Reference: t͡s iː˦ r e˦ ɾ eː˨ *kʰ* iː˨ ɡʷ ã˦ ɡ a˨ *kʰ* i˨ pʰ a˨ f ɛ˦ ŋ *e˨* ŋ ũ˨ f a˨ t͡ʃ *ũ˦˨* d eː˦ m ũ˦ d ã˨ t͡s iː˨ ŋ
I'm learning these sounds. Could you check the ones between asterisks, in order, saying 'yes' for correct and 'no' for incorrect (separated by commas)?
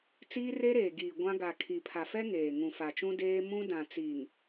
no, yes, no, no